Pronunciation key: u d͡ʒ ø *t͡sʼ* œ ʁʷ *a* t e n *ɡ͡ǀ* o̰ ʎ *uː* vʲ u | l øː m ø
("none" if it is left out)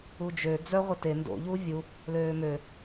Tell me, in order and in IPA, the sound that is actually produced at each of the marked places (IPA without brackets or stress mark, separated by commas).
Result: d͡z, ə, d, uː